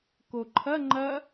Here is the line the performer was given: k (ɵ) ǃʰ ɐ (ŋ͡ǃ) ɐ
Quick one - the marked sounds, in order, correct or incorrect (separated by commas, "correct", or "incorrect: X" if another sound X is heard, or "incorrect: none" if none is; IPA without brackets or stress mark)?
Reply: incorrect: o, correct